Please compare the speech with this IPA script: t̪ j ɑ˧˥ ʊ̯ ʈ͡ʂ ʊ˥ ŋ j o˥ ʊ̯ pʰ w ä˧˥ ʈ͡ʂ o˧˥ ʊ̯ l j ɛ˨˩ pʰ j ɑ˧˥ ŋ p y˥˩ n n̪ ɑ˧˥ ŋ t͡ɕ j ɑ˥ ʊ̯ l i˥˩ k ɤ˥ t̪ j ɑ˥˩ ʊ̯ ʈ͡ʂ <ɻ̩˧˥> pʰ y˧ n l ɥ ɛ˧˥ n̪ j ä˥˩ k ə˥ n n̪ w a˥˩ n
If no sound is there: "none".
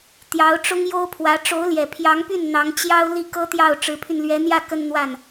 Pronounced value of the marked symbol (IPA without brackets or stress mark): ɻ̩˧˥